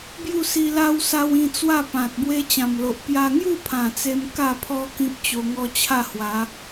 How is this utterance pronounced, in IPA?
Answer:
b j u˥˧ s i˧ l a˦ w s a˧ w ĩ˧ t͡s w a˥˧ p ã˨ t̚ b w e˦ t͡ɕ ã˨˩ m l o˨ ʔ p j a˧ ŋ j u˥˧ pʰ ã˨˩ t͡s e˦ m k a˥˧ pʰ ɔ˦ k ĩ˦ p̚ t͡ɕ o˧ ŋ ɔ˦ t͡ɕʰ a˥˧ h w a˨˦

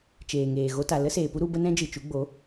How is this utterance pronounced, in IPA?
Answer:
t͡ʃ eː˨ ŋ eː˨ ɣ o˧ t a˨ l ə˦ s eː˨ p u˦ ɾ u˧ b ə˦ n ɛ̃˦ d͡ʒ ɨ˨ t͡ʃ u˨˦ ɡ͡b o˨˦

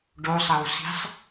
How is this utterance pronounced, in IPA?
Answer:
ɖ o sˤ ɐ w s i̤ sˤ

